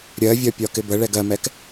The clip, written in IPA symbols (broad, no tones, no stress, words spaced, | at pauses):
ɾʲɜvʲɒpʲɒkɪ bəɭɛɡ ɜmɛk